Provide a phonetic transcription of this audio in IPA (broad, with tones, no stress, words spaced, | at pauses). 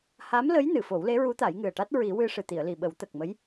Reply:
ha˧˥mlə˧˥j nɨ˨˩˨fo˨˩˦wle˧˥ɹu˧˥ t̪a˨˩˦jŋɨ˨˩ə̯ʈa˦˥t̚ ɹi˨˩˦wɨ˧ ʂɨ˨˩t̪i˨˩˨ə̯ li˨˩ɓə˨˩˦wt̪ə˨˩k̚mə˧˥j